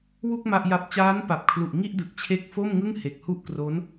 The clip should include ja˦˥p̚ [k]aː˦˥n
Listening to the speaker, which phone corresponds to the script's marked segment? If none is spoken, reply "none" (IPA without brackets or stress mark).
t͡ɕ